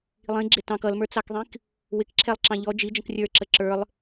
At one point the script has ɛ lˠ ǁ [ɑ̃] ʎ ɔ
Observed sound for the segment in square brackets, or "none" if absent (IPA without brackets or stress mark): ɑ̃